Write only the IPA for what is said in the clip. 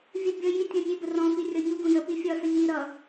vʲ ə bʲ ʌ j i tʲ ɔ̃ nʲ e b ə r ɔ̃ f i rʲ ɒ ɲ u ɡ ũ j ə p i fʲ ɒ s ə ɲ i ɾ ʌ

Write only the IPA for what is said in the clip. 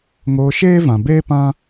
ŋ oː˧ ʃ eː˦ v ã˨ b eː˦ p ã˦

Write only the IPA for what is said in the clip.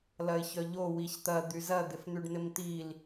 l ɐ ɪ̯ ç œ ʎ o w i ç t̪ ɐ d̪ y z ɐ d̪ ɪ f n̪ y ɖ n̪ ɪ m t̪ i l

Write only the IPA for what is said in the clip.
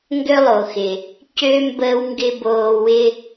ŋ ɡ ø˥ lˠ o˨ x ɪ˨ | c ø˥ m b əː˥ w ŋ ɡ ɪ˥ b oː˦ w ɪ˥

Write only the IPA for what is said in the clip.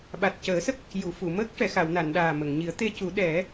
ɓ a˨˩ t̚ c əː˨˩˦ s ə˦˥ k̚ | j u˨˩˨ f u˨˩˨ m əː˦˥ k̚ ʂ ɛ˨˩˨ x a˨˩˨ w n a˨˩˨ n ɗ aː˨˩ m ə˨˩˨ ŋ ɲ i˨˩˦ ə̯ t̪ e˧ c u˨˩˦ ɗ ɛ˨˩˦

